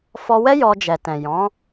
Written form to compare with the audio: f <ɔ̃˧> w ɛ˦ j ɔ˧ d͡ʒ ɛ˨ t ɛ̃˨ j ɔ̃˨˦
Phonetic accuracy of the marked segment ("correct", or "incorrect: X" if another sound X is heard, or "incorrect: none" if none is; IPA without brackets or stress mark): incorrect: ɔ˧